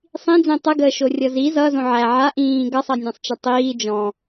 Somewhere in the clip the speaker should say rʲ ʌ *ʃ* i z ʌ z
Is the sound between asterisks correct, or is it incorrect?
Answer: incorrect